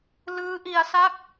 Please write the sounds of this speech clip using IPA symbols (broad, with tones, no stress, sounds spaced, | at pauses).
l ɯː˦˥ ʔ i˧ a̯ s a˥˩ k̚